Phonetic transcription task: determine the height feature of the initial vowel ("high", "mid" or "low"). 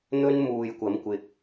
mid